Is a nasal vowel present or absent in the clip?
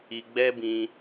present